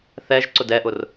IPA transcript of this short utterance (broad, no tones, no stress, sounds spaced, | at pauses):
θ ɛ ʒ ǀ ʊ d ɛ ʔ ʊ r